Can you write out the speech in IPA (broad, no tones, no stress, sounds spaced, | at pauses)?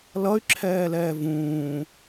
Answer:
l ʌ y̯ ǁʰ ɛː l ɛː v ũː